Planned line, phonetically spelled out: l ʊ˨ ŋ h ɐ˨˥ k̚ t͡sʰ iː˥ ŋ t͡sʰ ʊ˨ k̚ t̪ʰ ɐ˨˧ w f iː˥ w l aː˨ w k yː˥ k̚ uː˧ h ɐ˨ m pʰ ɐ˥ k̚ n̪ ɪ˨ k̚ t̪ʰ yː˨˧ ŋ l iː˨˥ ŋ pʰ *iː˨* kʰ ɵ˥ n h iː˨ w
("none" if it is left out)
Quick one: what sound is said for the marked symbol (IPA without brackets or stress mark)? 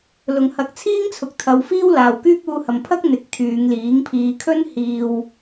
iː˧